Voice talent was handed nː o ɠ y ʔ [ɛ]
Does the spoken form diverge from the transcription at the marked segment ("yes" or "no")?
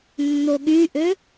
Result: yes